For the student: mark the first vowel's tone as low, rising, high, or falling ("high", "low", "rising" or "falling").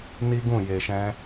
high